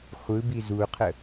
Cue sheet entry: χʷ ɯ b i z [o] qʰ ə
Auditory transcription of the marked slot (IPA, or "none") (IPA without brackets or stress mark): u